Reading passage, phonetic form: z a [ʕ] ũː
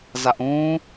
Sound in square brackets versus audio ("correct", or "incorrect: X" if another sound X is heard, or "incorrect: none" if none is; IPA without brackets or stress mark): incorrect: ʔ